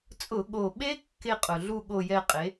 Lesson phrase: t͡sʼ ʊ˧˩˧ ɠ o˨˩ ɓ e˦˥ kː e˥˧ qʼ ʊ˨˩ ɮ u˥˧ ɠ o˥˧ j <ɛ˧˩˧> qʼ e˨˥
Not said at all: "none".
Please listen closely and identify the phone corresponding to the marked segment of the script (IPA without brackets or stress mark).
ɛ˥˧